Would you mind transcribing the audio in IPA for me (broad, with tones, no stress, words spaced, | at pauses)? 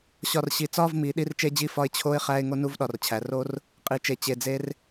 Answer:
ɕɒ˨˩rɕi˩˧ t͡sɒ˧˥˧vmi˩˧ ɗi˧˥˧rt͡ʃe˦˥d͡ʑi˧˥˧fɒ˧˥˧ɪ̯ t͡ɕʰo˧˥˧ɪ̯χæ˧˥˧ɪ̯ ŋo˦˥nu˦˥vɗɒ˩˧rt͡ɕʰæ˩˧ ro˦˥r | qʼi˩˧t͡ʃe˨˩ t͡ɕe˨˩d͡ze˦˥r